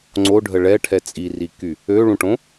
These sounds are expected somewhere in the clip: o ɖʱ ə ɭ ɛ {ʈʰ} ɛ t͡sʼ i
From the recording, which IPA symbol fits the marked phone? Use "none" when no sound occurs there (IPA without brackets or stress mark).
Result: ʈʰ